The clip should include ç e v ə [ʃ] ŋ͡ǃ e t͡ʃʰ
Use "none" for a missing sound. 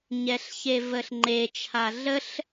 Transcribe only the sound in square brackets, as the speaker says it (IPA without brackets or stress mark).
ɬ